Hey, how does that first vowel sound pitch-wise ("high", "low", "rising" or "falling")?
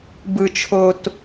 low